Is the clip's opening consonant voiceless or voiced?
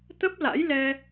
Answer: voiceless